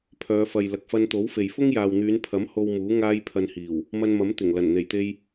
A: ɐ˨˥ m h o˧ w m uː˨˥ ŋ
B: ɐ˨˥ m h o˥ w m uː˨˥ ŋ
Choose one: A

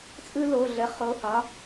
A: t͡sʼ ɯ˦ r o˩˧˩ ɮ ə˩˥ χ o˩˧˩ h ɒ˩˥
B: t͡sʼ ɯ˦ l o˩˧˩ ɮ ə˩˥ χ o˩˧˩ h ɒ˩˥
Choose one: B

